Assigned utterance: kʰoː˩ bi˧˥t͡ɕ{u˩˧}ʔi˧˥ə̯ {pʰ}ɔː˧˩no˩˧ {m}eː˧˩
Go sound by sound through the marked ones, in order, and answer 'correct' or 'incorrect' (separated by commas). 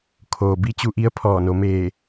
incorrect, correct, correct